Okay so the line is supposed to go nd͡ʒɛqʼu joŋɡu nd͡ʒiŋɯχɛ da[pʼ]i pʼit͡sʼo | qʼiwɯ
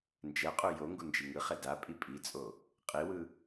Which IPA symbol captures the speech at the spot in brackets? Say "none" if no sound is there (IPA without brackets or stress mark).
pʼ